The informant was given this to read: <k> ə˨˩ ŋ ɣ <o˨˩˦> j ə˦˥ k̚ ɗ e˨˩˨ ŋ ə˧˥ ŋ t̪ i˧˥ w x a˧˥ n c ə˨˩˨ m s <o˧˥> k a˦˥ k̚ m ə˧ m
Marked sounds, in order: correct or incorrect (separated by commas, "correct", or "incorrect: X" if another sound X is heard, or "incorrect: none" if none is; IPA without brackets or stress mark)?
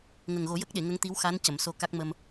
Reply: incorrect: ŋ, correct, incorrect: o˧